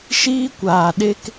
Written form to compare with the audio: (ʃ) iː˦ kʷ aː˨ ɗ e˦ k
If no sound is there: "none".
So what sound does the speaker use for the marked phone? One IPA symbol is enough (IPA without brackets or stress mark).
ʃ